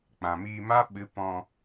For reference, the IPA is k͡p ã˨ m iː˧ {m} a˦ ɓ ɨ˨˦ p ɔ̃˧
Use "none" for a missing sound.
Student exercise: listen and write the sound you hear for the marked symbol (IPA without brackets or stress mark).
m